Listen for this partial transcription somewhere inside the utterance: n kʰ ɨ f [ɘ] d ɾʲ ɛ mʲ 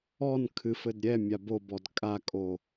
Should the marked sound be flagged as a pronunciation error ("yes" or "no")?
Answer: no